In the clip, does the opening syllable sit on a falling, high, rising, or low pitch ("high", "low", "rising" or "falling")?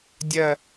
falling